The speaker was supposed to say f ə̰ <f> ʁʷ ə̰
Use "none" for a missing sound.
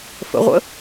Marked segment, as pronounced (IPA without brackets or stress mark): none